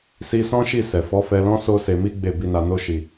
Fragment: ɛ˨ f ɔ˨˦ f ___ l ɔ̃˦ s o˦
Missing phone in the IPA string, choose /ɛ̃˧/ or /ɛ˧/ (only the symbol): ɛ˧